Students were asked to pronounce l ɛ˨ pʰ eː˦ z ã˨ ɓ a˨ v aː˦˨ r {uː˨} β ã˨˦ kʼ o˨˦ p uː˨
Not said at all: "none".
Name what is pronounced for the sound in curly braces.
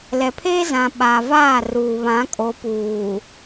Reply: uː˨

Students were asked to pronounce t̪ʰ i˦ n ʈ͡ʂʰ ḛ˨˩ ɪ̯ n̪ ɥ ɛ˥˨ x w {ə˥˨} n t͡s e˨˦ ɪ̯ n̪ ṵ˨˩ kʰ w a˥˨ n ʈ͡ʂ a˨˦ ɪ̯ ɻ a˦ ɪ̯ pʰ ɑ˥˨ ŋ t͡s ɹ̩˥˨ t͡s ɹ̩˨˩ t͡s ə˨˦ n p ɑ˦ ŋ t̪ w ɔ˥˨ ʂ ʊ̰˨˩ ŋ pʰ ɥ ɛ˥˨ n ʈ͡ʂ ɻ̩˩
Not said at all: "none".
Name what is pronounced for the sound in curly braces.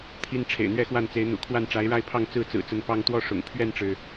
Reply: a˥˨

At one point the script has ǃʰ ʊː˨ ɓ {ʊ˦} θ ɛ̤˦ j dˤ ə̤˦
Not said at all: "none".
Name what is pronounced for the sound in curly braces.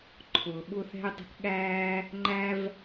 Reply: ʊ˦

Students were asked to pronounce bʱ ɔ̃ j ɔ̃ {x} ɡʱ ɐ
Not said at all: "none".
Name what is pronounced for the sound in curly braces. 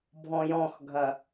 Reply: x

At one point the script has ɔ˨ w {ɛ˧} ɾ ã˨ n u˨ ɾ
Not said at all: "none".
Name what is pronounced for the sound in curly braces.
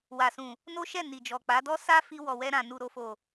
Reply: ɛ˧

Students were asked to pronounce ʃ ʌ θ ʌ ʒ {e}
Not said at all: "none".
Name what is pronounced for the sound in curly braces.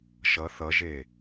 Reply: e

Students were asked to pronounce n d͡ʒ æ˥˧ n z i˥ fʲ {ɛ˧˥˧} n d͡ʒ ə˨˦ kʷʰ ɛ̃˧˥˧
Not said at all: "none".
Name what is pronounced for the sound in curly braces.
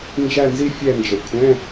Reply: ɛ˥˧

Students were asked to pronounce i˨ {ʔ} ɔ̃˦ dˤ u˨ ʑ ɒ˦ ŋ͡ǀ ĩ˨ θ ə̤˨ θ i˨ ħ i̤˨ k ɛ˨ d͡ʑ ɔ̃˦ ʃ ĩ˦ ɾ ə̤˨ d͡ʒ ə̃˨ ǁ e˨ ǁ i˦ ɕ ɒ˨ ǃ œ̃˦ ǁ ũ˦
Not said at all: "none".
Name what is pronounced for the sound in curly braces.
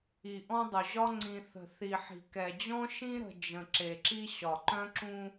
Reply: ʔ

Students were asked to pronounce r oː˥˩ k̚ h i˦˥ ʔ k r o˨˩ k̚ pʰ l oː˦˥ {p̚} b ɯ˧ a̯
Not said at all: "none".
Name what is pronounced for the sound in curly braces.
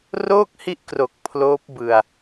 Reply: p̚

